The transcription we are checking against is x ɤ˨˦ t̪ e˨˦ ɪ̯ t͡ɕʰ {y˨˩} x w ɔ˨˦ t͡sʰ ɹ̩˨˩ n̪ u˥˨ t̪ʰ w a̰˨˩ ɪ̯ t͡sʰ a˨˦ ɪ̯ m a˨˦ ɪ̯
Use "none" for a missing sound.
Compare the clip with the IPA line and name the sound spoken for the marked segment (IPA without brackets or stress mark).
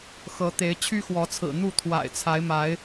y˦